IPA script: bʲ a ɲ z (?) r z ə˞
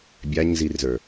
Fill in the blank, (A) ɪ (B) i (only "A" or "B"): B